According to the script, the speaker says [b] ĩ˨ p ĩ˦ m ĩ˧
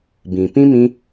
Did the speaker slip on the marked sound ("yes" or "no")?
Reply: no